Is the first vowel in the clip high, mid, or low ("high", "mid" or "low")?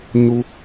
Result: high